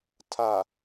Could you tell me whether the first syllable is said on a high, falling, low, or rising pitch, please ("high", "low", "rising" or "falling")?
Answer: low